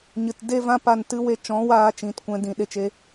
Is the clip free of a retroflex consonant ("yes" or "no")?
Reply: yes